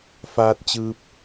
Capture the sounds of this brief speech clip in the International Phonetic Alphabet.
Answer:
f aː˧ t̚ t͡ɕ ɯː˧ p̚

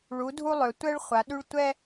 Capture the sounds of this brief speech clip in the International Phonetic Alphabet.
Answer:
ɭ u˨˦ dʱ u˥ lˠ ø˨˦ tʷ ɛ˥ ɭ χʷ a˨˦ ɗ y˥ ɭ tʷ ɛ˥

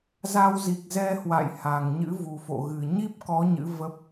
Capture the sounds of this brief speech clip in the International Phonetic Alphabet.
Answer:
z a˧ w z i˨˩ k̚ z ɛ˧ h w a̰˧˨ j h a˨˩ ŋ ɲ ɨ̰˧˥ v u˨˩ f o̰˧˨ ɣ ɨ˨˩ ɲ i˦˥ p̚ k ɔ˨˦ ɲ ɨ̰˧˥ v ə˦˥ p̚

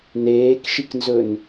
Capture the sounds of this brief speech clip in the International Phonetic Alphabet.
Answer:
n eː k ʃ i k n z ɵ n

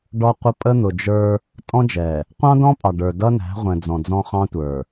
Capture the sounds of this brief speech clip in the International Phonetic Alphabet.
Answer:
ɖ ɔ˦ qʷ ə˦ pʼ ə˦ n̪ ʊ˨ d͡ʒ ə˞˦ | tʼ ɔ̃˦ d͡ʒ ɛ˨ | qʷ ɑ̃˦ d ɔ̃˦ pʼ ɑ˨ ɖ ə˞˨ d ʌ˦ n æ̤˨˦ ʁʷ ɛ̃˨ d͡z ɔ̃˨ d͡z ɔ̃˦ χ ɑ̃˦ tʷ ə˞˨

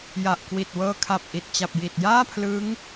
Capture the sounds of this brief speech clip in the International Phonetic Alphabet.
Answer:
j a˨˩ ʔ k w i˨˩ t̚ w ɤː˧ kʰ a˨˩ p̚ ʔ i˨˩ t̚ t͡ɕ a˨˩ p̚ j i˨˩ t̚ j aː˥˩ pʰ l ɯ˦˥ ŋ

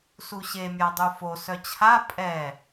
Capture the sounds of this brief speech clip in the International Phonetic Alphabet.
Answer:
s u ɕ e mʲ a dˤ u f o s œ t͡ɕʰ a pʼ ɛ

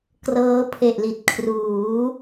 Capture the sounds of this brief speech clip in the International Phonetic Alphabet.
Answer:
k r ɤː˦˥ pʰ e˨˩ ʔ l i˨˩ t̚ kʰ r uː˩˦

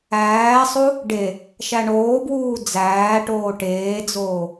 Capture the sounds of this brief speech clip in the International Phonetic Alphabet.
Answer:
æː sˤ u | ɖ e | ʃ æ ɳ oː b w uː d͡z æː ʈ oː ʈ eː d͡z oː

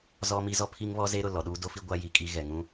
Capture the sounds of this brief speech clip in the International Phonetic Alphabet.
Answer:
z ɔ˦ m i˦ z ɔ˦ pʰ i˦ ŋ β ɔ˦ z e˦ ɾ ʊ˨ l ɔ˨ ɗ uː˦ d o˦ f i˦ ɡʷ a˦ j i˨ kʼ i˦ ɣ ɛ˨ ŋ ũ˦

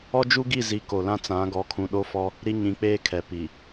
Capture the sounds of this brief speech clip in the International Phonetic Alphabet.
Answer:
ɔ˦ d͡ʒ u˦ ɡ i˦˨ z i˨ k o˨ l ã˦ t͡s ã˨˦ ɡ ɔ˨˦ kʰ ũ˨ ɗ o˦ f ɔ˦ | ɾ i˦ ɲ ĩ˨˦ k͡p eː˦ kʰ ɛ˨ p i˨

